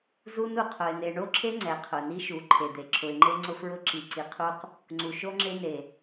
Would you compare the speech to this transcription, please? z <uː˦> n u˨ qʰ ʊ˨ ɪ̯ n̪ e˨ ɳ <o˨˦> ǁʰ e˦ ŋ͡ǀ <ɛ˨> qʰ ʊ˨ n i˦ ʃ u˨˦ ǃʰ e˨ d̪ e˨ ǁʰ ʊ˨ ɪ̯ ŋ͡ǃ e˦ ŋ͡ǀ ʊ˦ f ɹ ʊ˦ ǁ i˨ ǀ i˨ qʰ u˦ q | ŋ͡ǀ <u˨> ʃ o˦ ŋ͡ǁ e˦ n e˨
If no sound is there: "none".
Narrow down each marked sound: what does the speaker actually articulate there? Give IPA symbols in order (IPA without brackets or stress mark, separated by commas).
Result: u˦, o˦, ɛ˨, u˨